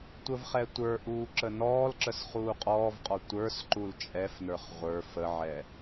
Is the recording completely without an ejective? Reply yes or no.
no